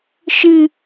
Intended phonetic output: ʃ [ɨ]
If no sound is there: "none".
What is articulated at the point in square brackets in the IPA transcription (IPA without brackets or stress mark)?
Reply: ɨ